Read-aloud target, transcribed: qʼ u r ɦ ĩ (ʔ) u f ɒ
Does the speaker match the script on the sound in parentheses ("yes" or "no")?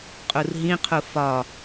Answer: no